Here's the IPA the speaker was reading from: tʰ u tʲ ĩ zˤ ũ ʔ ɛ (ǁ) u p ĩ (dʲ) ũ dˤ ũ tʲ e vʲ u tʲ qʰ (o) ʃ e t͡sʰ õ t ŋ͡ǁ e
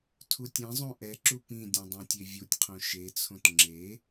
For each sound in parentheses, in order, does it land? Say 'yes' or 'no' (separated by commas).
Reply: yes, yes, no